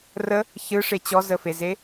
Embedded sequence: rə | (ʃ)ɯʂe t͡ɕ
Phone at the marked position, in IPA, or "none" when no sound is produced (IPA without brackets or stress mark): ç